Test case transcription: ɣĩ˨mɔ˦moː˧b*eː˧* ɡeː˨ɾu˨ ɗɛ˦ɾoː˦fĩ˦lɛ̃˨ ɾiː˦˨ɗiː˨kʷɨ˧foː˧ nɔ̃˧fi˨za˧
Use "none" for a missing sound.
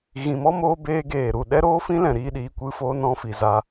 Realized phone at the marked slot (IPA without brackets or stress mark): eː˧